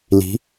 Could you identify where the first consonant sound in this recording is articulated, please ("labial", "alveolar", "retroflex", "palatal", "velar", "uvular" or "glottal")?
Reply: alveolar